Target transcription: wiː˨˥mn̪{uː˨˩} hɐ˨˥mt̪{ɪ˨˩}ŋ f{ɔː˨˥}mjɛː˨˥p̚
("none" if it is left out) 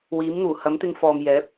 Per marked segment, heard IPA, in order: uː˨˩, ɪ˧, ɔː˨

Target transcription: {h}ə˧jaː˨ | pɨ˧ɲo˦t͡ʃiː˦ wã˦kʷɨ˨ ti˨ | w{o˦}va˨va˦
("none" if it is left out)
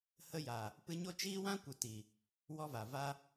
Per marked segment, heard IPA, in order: h, ɔ˦

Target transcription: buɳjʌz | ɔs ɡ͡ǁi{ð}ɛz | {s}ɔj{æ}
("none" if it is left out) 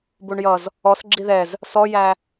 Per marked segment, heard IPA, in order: ð, s, æ

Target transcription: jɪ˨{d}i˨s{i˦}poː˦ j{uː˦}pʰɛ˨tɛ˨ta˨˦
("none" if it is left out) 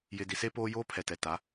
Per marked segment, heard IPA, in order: d, e˦, oː˦

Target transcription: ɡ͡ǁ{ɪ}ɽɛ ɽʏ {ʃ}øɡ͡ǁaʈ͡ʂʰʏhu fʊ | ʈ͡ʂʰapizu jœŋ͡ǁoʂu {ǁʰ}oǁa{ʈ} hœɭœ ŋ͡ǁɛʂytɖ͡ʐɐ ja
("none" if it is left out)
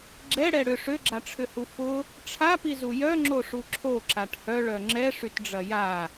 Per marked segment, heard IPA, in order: ɛ, ʂ, ǁʰ, ʈ

